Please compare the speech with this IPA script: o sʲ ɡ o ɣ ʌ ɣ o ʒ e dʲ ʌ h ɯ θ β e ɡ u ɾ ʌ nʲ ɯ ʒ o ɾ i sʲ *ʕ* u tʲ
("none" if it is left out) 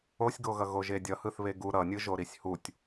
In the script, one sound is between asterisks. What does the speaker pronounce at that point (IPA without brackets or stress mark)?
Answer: h